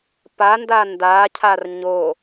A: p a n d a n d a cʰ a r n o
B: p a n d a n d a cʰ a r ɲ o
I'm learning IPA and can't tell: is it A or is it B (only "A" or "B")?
B